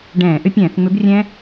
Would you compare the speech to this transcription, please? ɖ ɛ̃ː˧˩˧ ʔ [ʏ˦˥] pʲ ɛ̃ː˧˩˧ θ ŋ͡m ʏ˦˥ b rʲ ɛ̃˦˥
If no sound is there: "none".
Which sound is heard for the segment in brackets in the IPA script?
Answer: ʏ˦˥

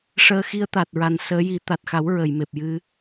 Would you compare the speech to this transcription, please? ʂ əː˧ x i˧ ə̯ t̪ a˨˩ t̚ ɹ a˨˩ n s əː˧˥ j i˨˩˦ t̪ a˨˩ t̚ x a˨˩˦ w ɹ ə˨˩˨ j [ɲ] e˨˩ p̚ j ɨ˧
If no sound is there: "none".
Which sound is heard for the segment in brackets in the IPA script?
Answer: m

